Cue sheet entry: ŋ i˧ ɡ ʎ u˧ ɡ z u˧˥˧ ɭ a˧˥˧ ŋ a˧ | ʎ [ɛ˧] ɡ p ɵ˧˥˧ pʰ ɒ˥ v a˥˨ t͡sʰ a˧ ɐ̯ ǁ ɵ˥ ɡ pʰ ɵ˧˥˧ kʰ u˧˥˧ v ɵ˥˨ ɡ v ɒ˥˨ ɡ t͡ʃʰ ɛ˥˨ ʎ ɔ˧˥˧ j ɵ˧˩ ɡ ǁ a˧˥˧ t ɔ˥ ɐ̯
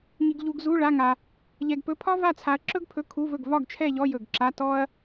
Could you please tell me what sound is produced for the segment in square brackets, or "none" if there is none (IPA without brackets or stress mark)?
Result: ɛ˧